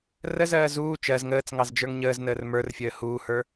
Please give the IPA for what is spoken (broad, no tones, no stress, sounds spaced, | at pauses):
r ə z ɜː z uː t͡ʃ ɜ z ŋ əː t͡s ŋ ɑ z d͡ʒ ə˞ ŋ ɲ əː z n əː r m ə˞ r fʲ əː h uː h ə˞